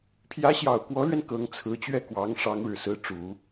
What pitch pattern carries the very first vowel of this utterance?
rising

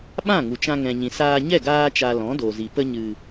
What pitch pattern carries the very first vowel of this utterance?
falling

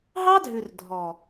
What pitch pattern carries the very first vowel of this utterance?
high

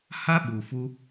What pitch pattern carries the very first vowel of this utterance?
high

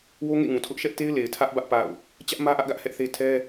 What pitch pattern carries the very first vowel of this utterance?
high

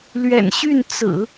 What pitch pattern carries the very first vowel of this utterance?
low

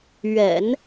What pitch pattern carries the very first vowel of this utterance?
low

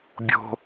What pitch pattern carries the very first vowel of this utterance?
low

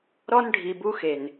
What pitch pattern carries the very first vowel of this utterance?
high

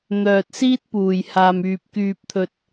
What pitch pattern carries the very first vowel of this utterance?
low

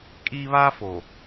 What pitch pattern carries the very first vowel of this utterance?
high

